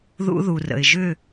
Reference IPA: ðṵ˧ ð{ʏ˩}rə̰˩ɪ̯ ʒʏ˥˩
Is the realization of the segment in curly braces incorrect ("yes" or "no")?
yes